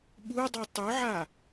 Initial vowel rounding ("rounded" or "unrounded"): rounded